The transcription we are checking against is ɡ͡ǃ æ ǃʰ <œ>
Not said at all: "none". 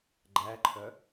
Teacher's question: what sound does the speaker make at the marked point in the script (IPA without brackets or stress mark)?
œ